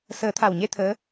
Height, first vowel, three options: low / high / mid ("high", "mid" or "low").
mid